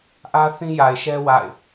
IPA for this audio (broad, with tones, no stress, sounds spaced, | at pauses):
ʔ ä˦ θ ĩ˦ j a˨ ɪ̯ ʃ ɛ˦ w a̰˦˨ ɪ̯